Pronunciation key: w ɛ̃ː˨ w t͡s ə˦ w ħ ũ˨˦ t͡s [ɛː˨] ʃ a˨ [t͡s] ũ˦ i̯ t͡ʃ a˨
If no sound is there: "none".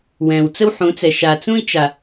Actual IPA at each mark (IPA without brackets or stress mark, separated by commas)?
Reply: ɛ˨, t͡s